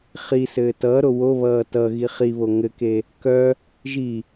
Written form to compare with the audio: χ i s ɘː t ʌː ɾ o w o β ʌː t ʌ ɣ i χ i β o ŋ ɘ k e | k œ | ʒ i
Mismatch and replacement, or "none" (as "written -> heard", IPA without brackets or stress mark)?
none